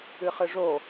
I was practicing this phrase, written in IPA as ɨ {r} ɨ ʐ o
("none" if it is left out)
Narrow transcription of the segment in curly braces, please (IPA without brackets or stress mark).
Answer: χ